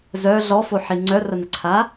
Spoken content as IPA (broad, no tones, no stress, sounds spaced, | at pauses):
z œ ɮ ɔ f o ħ i ŋ͡ǀ œ r ə n ə ǀʰ a